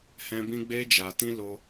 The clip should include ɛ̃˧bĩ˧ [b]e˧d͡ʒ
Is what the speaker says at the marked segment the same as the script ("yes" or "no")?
no